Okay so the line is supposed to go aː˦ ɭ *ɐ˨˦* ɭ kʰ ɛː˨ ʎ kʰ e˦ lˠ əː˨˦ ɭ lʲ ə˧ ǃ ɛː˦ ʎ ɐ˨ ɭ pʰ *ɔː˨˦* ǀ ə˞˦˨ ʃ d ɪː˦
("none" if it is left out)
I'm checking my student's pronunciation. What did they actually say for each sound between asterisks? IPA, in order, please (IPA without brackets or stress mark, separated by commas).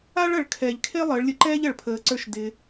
ɐ˨˦, əː˨˦